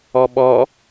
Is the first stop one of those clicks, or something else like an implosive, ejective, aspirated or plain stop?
implosive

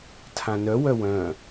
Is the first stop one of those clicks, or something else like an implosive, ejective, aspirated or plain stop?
aspirated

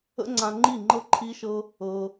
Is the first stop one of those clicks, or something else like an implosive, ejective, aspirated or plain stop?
click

